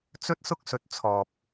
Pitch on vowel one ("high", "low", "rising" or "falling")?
high